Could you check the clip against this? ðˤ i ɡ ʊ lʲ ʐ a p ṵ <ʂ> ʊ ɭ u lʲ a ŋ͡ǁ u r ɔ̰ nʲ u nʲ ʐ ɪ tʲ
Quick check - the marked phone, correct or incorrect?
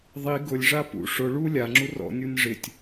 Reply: correct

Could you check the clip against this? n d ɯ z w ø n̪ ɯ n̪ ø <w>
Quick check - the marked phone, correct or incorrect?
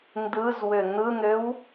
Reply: correct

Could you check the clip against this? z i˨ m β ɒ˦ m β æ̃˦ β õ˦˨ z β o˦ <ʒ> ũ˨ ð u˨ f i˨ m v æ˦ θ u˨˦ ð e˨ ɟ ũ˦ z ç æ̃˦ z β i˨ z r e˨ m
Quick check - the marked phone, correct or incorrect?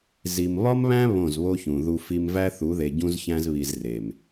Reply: incorrect: ç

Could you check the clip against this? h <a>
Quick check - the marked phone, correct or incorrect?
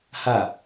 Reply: correct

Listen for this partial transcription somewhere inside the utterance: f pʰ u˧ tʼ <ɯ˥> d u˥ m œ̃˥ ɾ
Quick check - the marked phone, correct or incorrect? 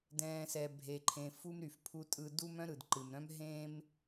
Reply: incorrect: ɯ˧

